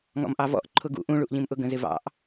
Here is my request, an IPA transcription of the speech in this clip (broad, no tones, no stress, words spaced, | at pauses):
ŋɔ̰mʔɑvɔ̰ʔ ǃʰʊɡṵ ʔũɭuʔʎĩmʔʊ ɡə̃zɪvɑ̰ʔ